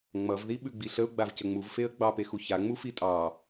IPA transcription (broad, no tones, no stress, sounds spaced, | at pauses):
ŋ͡m ʌ v ð i ɓ ʉ ɡ͡b i ɬ ə ʊ̯ ɡ͡b a v c ə ŋ͡m u v f e ə̯ ɡ͡b ɑ p e x u ç a ŋ͡m u f i tʼ ɑ